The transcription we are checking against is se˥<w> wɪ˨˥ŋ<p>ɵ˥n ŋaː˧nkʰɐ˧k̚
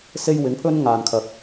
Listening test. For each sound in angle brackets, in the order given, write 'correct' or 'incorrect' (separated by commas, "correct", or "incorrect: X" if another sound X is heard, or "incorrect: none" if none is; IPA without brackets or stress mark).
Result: incorrect: j, incorrect: pʰ